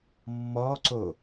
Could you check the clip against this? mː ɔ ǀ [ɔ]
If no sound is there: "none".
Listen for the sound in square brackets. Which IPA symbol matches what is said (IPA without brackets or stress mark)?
o